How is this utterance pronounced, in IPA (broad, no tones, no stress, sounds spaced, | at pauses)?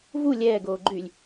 v u lʲ ɛː ɡ oː ɡ͡ǃ y lʲ